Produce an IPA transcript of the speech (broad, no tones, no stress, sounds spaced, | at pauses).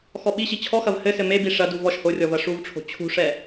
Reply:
x ɔ ɓ i ɕ i t͡ɕʰ ɔ x ɐ v h ɘ s ɘ m e b i ʂ ɐ d u v ɔ ʃ h o rʲ ɔ v ɐ ʂ u v ʈ͡ʂʰ o̤ t͡ɕʰ ṳ ʂ ɛ